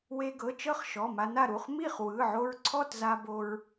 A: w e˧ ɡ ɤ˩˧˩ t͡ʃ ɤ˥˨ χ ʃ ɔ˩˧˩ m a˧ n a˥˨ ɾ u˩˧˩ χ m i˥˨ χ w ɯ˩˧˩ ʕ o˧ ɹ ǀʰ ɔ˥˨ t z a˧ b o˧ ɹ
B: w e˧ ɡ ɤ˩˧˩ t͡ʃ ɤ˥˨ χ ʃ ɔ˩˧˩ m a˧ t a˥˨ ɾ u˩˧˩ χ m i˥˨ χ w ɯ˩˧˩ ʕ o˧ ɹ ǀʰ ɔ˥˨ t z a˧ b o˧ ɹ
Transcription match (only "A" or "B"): A